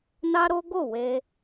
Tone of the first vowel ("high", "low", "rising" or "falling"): high